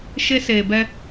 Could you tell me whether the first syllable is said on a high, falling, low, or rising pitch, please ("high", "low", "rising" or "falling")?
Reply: high